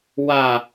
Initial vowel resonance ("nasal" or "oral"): oral